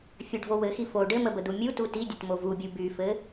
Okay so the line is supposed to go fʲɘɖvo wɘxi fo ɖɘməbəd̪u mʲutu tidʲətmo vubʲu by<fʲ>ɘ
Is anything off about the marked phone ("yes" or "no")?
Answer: yes